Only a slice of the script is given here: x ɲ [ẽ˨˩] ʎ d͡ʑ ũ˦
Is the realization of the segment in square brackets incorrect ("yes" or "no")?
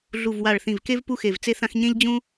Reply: yes